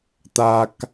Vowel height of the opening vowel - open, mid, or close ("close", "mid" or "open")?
open